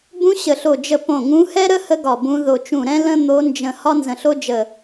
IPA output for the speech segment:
bũ˧˥ ɕə˧˩ɬo˧˩ d͡ʒə˧˩ põ˧˩ŋũ˧˥hɛ˥ɾə˥ hə˥ɡɒ˧˩bũ˧˥ ðo˧˩t͡ʃũ˧˩ɾɛ̃˥ lə̃˥ n̪o˧˥nd͡ʒə̃˧˩ hɒ˥nzə̃˧˩ɬo˥d͡ʒə˧˩

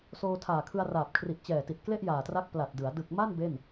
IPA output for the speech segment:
soː˧tʰaː˨˩kʰɯ˧a̯ raː˨˩p̚kʰri˨˩ʔt͡ɕɛː˨˩ti˨˩t̚ kle˥˩ʔjaː˨˩tra˦˥k̚ pla˨˩t̚dɯ˩˦a̯ dɯ˨˩k̚ ma˥˩n be˥˩n

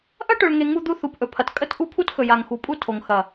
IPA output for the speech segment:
ʔɐ˦ʈɵ˨ɭŋe˨ ŋu˦d̪u˦ θu˨pʔɵ˨pʰɐ˨t kʼə˦t ʔu˦pʰu˦txɵ˨ja˨ŋ xu˨pʼu˦ tʰo˨ŋxɐ˨

